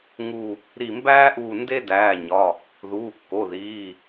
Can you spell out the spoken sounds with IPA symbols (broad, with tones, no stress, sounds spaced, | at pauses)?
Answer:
ŋ u˧˩ | ɾ i˧˩ m b æː˥ ʔ uː˧˩ n d e˥ d æː˩˧˩ ɲ ɒ˩˧˩ | ð uː˩˧˩ kː o˩˧˩ ð iː˩˧˩